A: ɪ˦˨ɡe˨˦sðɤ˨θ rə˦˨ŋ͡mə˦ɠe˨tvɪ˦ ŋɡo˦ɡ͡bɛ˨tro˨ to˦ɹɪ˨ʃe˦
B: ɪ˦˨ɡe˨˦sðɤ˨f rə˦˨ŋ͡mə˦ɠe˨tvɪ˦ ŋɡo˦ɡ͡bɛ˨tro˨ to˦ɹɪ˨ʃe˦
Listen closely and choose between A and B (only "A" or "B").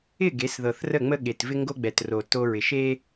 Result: A